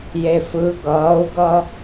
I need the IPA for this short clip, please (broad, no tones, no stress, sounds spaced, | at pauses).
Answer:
j e f ɯ ɡ ʌː u̯ ɡ ʌ